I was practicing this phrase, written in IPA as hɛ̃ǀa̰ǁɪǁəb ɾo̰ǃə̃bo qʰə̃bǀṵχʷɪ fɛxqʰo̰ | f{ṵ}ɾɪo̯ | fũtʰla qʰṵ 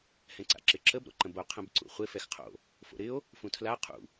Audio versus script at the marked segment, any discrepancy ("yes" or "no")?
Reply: yes